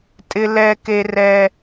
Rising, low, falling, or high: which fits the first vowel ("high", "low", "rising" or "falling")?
high